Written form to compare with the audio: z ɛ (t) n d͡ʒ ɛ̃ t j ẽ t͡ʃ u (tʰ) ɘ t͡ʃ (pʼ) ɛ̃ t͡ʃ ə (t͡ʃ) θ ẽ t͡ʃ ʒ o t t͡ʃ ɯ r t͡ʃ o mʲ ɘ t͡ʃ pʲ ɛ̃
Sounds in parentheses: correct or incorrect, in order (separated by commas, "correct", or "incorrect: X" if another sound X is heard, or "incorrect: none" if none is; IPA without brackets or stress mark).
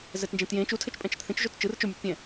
correct, correct, correct, incorrect: t